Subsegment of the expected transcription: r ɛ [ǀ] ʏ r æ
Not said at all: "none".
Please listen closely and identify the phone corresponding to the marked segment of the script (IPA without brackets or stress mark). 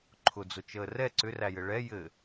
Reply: ǀ